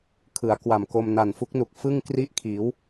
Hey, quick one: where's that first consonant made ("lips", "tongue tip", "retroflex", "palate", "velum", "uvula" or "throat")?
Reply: velum